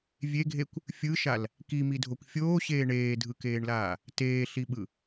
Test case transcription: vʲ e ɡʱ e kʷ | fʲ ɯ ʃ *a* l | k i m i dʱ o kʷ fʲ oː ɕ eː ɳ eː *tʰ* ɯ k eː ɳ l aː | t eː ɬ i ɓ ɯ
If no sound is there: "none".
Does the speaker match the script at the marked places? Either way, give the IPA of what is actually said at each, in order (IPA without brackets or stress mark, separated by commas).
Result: a, dʱ